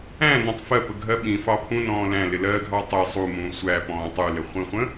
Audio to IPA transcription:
æ̃ n ɔ̃ tˤ f ɜ p ə ɡʱ ɜ ɓ ĩ f ɑ pʰ ũ n ɔ̃ː l æ̃ l ɪ l ɜ ɡʱ ɑ tˤ ɪ sˤ u m ũː sʷ æ p ɔ̃ː tˤ u l ɪ χʷ ĩ χʷ ə̃

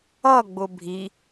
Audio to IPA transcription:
ʌ ɡ͡b ʊ bʱ i

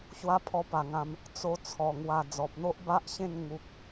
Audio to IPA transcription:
ɕ w a˦ pʰ ɔ˥˧ p a˨˩ ŋ ã˧ m | t͡s o˧ t͡sʰ ɔ˨˩ ŋ w a˧ d͡z ɔ˨ p̚ n̪ o˦ ʔ b a˦ ʔ ɕ ẽ˥˧ n ŋ u˨ k̚

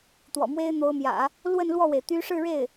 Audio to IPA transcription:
t̪ w ɔ̰˨˩ m w e˥ ɪ̯ n̪ o˧˥ ʊ̯ m j ä̰˨˩˦ | l w ə˥˧ n l w ɔ˥˩ w e˩ ɪ̯ t̪ y˥ ʂ ɻ̩˥˧ ɻ e˥˩ ɪ̯

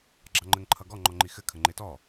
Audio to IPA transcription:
ɡ͡ǁ ɑ ŋ͡ǃ ɘ ŋ ǃʰ ʌ ɡ ɔ ŋ͡ǃ ɔ ŋ͡ǃ i x ɘ kʰ ə ŋ͡ǃ e t ɔ

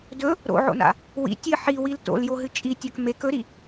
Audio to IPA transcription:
d ɵ | ɾ o̰ ʕ o̰ n a̰ | w ḭ tʲ ɨ ħ i w i l t o̰ l j o ɦ ɨ t͡ʃʼ i tʲ a k m e k ɵ ɾ i

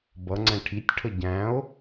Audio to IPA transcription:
b ʌ ŋ͡ǀ ɛ̃ ʈʰ i tʲ ʈʰ ə ɟ æ̃ o̯

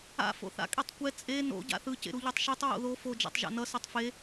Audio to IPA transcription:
a̰ f o̰ θ a̰ kʼ i tˤ kʷ ɛ t͡sʼ e n o̰ ɟ a̰ θ ɯ c ḛ ɾ u ʎ ɛ tˤ ʃ i tˤ ɹ o̰ ð o f o d͡ʒ a̰ tˤ ʒ a̰ n ʌ s o tˤ f e

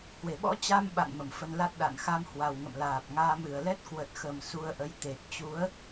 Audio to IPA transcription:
h w e˨˩ ɓ ɔ̰˧˥ t͡ɕ a˧ m ɓ a̰˧˨ n m ə˨˩ m f ə˧ n l a˦˥ t̚ ɗ a̰˧˨ n x a˧ m h w a˨˩ w ŋ ə̰˧˨ m l aː˨˩ p̚ ŋ aː˧ m ɨ˧˩ ə̯ l ɛ˦˥ t̚ k w ə˨˩ t̚ x ə˨˩ m s u˧ ə̯ ʔ ə˨˦ j t̪ e˨˩ t̚ t͡ɕ u˨˦ ə̯

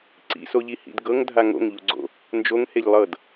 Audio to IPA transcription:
ǀ ḭ s o ʎ i h ḭ d ɡ ɤ ŋ dʱ a ŋ o̰ ŋ ʎ u ɡ͡ǀ o̰ | n d͡ʒ o ŋ h e ʎ lˠ ɤ d

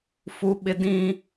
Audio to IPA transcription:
f u˦ ɓ ɪ˦ d ĩ˦

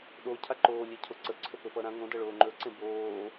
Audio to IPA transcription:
ɗ o cʰ a ǃ oː lʲ e cʰ o ǀ ə ǀʰ ɵ p ɵ p ʌ ɾ ã ŋ õ d ʌ ɭ oː ŋ͡ǃ ɵ ǀ ẽ b oː

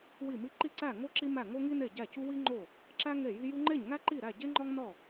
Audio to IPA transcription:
w i˥˩ m i˥˩ ǃ i˥˩ ǀ æ˥˩ ŋ o˥ ǁ i˥ m æ˥˩ ŋ o˥ ŋ i˥ n e˥˩ ɟ æ˥˩ c u˥ w i˥ ŋ͡ǃ o˥˩ | ǁ æ˥ ŋ e˥˩ j i˥ j u˥ ŋ͡ǃ e˥˩ ɲ ŋ æ˥ ǃ i˥˩ ɾ æ˥˩ ɟ e˥ ŋ͡ǃ ɒ˥ ŋ n ɒ˥˩

